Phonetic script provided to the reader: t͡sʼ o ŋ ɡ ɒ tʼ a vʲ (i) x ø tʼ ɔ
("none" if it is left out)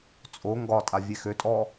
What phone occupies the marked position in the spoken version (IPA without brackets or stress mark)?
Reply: e